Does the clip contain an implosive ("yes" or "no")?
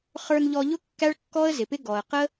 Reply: no